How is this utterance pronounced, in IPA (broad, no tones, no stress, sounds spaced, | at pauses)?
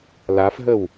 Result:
l a f ɦ ə w